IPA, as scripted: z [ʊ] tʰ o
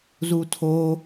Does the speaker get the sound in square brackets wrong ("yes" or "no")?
yes